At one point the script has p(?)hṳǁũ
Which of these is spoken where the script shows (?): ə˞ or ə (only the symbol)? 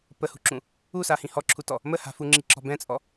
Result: ə